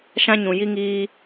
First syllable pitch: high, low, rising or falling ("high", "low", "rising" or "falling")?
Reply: high